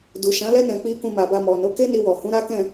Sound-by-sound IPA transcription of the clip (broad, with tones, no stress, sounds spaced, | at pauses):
d u˨ ʃ ã˨˦ l ɛ˦ n ɛ̃˧ k͡p i˧ k ũ˧ m a˨ b a˧ m ɔ˨ n o˨˦ k e˦ n i˧ w ɔ˨ h ũ˨˦ ɾ a˦ k ɛ̃˦˨